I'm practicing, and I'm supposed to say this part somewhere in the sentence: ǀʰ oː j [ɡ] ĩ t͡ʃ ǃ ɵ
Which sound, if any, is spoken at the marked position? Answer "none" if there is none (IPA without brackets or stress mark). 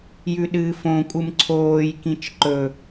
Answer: k